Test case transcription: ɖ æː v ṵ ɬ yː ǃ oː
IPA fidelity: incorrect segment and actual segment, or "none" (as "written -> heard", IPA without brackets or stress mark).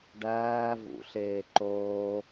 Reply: yː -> eː